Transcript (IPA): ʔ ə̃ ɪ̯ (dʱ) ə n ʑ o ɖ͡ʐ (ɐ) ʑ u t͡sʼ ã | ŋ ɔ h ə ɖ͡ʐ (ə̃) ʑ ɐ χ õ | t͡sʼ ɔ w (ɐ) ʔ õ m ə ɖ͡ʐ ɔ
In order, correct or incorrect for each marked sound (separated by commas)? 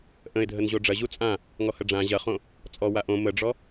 correct, correct, incorrect, incorrect